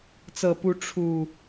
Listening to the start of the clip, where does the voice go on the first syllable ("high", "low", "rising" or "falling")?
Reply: low